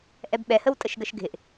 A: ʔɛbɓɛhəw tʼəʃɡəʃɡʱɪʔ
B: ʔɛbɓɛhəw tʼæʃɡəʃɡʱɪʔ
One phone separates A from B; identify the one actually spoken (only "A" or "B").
A